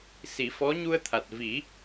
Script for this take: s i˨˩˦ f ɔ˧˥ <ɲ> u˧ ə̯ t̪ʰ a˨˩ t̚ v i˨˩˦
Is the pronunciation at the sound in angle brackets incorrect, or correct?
correct